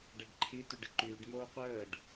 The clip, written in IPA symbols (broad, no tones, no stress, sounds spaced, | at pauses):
ɖ ɛ ɖ ǃʰ i t y ɖ ɪ ǃ yː ɖ m oː qʷ əː ɖ